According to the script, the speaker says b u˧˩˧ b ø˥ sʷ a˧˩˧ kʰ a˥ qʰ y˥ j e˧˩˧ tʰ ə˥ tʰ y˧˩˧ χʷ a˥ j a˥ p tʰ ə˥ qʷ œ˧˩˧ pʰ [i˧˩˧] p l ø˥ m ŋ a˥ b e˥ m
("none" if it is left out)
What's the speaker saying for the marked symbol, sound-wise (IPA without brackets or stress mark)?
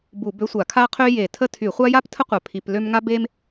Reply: i˧˩˧